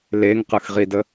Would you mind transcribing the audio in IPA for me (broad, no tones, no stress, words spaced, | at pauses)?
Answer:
leŋqɯxʁidə